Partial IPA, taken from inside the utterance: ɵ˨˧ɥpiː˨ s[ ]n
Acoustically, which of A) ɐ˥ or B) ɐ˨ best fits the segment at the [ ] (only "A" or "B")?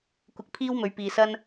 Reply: A